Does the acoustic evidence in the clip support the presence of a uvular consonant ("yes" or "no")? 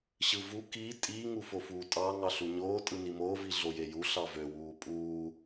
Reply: no